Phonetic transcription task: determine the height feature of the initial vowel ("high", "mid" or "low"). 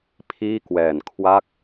high